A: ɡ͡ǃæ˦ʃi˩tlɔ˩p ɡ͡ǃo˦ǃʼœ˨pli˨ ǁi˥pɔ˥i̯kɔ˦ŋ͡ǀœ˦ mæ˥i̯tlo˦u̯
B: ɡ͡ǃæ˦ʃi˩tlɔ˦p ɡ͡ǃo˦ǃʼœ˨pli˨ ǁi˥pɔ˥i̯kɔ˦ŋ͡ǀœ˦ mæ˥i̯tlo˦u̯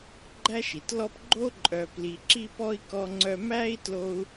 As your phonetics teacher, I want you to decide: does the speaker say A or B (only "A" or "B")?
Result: B